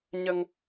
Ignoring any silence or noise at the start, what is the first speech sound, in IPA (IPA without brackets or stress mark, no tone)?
ɲ